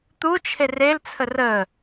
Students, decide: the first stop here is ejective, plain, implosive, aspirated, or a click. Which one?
plain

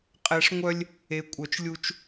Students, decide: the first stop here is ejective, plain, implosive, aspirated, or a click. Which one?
ejective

